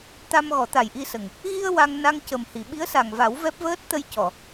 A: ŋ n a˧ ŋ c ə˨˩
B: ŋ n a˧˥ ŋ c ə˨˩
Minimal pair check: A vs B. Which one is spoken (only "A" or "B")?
A